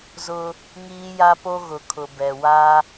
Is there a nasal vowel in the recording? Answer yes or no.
no